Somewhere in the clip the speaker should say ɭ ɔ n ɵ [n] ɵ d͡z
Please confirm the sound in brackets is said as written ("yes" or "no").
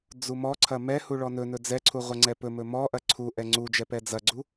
yes